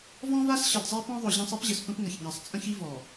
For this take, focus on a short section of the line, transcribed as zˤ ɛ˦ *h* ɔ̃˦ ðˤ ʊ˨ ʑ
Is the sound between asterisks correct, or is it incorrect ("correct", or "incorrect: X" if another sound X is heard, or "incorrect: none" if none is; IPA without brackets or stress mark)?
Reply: incorrect: p